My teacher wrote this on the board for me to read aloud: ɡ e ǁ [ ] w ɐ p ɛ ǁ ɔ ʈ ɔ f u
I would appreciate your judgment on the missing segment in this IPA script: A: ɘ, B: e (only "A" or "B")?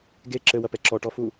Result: A